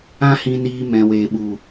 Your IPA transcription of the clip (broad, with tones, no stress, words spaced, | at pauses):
ã˦ hĩ˧niː˧ mɛ̃˨weː˨ɓu˨